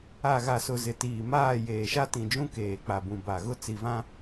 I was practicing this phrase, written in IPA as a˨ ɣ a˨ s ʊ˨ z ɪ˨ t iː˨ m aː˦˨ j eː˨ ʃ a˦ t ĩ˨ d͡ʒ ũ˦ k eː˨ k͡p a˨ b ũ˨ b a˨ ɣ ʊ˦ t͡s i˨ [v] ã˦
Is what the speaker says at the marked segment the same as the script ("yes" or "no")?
yes